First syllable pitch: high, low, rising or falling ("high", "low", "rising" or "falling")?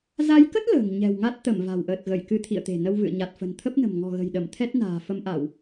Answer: rising